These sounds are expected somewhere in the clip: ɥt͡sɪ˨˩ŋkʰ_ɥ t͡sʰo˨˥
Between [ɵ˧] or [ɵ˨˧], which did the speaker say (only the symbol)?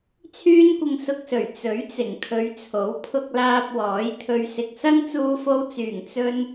ɵ˨˧